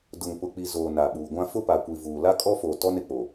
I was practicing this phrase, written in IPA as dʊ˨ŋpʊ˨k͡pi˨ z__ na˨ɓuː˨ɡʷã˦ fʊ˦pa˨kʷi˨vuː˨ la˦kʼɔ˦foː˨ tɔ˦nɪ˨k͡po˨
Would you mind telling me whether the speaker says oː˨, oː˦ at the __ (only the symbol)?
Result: oː˨